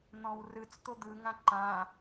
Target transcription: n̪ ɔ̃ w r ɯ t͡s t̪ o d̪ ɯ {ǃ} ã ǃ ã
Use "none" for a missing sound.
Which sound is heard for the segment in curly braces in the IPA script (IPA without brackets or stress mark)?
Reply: ŋ